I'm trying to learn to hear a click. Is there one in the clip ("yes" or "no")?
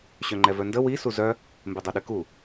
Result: yes